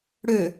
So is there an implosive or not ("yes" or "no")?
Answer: no